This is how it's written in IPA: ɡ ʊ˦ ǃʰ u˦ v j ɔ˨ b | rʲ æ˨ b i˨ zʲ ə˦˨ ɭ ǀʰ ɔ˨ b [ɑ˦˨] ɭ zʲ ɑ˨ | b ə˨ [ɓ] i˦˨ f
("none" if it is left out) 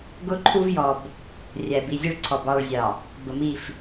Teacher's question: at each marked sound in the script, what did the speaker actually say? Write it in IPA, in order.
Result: ɑ˦˨, m

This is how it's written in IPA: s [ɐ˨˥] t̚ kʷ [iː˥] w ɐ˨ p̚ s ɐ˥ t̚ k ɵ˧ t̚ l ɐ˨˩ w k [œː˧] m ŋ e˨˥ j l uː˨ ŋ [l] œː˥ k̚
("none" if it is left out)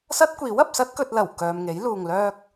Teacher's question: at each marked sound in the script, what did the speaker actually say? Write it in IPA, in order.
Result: ɐ˥, iː˨˥, œː˨, l

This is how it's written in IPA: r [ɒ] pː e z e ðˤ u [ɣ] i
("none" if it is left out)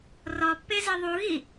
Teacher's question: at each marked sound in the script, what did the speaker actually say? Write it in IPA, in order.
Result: ɒ, ɣ

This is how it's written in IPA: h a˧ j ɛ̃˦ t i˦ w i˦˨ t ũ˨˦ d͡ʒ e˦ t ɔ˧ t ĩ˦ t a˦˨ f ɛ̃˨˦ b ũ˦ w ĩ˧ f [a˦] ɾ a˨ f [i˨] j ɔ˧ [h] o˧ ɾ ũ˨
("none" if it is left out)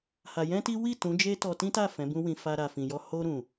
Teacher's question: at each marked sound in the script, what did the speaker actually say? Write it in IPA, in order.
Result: a˧, ĩ˨, h

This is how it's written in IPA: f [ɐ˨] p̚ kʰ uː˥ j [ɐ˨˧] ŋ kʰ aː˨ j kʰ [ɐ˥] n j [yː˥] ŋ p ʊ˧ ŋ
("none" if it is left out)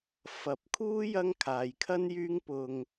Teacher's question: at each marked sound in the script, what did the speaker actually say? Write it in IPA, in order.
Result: ɐ˨˥, ɐ˥, ɐ˥, yː˥

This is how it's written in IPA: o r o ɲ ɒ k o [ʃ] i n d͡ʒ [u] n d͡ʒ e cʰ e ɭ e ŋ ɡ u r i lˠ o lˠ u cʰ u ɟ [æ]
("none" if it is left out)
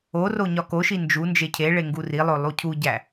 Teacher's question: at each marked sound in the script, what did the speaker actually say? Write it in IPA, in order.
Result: ʃ, u, æ

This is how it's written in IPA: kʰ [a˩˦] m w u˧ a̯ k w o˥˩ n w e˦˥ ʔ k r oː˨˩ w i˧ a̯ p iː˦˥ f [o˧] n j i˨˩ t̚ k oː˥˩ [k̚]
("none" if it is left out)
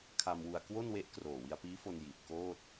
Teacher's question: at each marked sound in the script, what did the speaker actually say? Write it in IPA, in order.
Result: a˧, o˧, t̚

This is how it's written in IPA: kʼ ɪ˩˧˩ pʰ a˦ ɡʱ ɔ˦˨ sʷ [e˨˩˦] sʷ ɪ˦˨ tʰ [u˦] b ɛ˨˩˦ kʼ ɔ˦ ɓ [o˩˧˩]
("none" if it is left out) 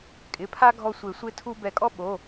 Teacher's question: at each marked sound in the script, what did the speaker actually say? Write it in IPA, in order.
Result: e˨˩˦, u˦, o˩˧˩

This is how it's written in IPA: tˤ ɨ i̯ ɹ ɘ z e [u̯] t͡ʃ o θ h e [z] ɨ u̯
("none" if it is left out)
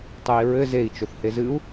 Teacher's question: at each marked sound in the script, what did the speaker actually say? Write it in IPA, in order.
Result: i̯, z

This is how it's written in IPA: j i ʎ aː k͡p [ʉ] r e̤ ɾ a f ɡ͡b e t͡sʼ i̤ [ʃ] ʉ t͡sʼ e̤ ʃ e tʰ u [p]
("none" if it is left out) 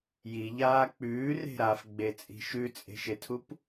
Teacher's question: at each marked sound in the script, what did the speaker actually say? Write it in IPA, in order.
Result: ʉː, ʃ, p

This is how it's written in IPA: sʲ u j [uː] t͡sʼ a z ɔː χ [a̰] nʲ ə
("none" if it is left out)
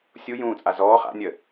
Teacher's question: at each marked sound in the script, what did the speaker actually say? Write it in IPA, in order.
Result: ũː, a̰

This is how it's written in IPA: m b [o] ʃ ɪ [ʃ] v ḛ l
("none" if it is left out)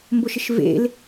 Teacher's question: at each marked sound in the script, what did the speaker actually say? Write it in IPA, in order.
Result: o, ʃ

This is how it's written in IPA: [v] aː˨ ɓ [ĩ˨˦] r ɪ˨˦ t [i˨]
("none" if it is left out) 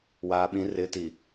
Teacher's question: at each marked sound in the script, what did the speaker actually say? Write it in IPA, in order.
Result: w, ĩ˨˦, i˨

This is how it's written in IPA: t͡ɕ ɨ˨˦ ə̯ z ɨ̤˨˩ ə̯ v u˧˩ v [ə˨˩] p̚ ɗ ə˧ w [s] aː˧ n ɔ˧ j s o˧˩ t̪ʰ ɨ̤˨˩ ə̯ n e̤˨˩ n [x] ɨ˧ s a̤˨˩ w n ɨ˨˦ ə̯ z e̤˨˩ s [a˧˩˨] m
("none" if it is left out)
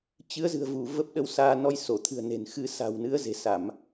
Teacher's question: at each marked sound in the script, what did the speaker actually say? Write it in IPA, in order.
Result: ə˦˥, s, x, a˧˩˨

